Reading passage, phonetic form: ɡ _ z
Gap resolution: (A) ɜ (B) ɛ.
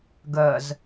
A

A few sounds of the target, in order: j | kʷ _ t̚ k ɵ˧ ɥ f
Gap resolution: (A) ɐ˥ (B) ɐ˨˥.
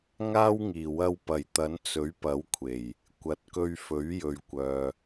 B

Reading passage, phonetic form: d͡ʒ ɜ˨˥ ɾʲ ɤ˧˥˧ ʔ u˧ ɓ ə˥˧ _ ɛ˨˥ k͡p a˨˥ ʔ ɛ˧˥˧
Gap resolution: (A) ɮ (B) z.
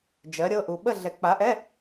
A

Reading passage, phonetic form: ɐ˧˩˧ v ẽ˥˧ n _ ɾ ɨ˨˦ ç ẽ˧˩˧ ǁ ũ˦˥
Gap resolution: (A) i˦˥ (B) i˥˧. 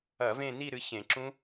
B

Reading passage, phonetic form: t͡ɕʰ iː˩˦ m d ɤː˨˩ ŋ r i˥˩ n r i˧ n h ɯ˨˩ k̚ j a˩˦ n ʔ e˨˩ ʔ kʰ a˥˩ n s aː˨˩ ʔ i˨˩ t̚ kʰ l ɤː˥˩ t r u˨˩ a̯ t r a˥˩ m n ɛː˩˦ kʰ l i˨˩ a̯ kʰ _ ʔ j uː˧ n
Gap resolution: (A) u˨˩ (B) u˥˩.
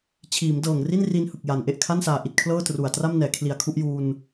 B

